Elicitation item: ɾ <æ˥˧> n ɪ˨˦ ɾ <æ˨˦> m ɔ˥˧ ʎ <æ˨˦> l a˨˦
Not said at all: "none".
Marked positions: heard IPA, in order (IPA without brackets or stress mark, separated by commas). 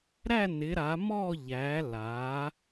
æ˥˧, a˨˦, æ˨˦